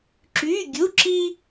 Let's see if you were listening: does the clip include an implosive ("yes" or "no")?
no